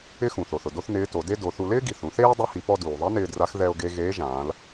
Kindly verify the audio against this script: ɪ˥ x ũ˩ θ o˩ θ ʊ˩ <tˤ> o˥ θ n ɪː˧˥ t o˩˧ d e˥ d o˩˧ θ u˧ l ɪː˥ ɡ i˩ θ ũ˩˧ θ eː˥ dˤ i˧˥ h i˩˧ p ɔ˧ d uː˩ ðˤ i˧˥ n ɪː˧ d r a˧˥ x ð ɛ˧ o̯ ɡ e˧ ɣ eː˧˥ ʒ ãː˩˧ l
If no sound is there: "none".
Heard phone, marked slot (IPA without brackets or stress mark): d